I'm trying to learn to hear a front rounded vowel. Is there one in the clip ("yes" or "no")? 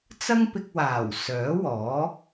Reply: yes